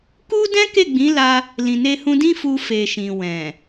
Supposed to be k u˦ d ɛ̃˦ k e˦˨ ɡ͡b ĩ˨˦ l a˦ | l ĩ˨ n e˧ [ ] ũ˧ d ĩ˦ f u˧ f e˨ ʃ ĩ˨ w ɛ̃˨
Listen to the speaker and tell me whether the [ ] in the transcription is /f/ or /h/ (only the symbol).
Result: h